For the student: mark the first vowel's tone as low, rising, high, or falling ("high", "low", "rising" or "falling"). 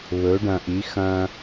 rising